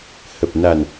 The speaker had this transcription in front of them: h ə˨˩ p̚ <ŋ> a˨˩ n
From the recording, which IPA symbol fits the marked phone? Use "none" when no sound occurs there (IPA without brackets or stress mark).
n